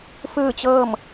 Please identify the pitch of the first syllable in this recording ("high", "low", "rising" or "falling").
falling